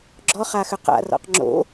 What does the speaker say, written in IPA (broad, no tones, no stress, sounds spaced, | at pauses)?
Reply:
ɡ͡ǁ ɔ χ a x ʏ q a̰ r ɔ̰ q ŋ͡ǁ o̰